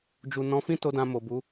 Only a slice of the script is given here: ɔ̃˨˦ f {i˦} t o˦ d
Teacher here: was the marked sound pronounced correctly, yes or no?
no